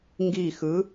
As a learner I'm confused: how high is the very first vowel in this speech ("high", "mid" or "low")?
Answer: high